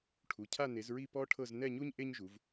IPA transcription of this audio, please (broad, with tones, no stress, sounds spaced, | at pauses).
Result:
ʈʰ u˩˧˩ cʰ a˥˧ n e˨˦ z ɹ i˥˧ p ɔ˥ ʈʰ ɤ˥˧ z n ɛ˥˧ ɲ u˥ ɲ ʔ e˥ ɲ ʒ u˨˦ v